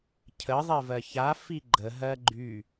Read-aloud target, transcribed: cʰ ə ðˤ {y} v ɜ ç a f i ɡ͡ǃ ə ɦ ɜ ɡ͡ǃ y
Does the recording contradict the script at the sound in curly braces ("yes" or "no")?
yes